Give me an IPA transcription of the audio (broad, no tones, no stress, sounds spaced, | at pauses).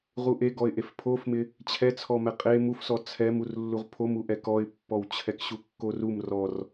ʁ u ʔ e ɡ ɔ ɪ̯ ʔ e f pʰ o f m ɪ | t͡ɕʰ ɛ t͡sʰ ɔ m ɛ qʼ e m u f s ɔ t͡sʰ ɛ m u r lː u ʁ pʰ o m u ʔ ɛ k ɔ ɪ̯ pː ɔ w t͡ɕʰ ɛ k ɕ u kː o r u m r ɔ r